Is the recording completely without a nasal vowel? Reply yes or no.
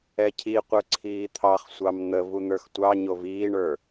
yes